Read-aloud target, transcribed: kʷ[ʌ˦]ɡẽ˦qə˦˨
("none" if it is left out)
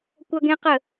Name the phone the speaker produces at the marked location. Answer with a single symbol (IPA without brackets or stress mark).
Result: ʌ˦